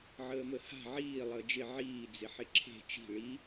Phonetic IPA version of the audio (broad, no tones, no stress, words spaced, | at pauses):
ʕəːməha̤ ʕiː lˠəːd͡ʒɪ ʕiː d͡zɪħɪǁʰe̤ t͡ʃi̤ ɭi